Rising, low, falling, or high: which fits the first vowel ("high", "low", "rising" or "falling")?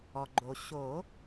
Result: low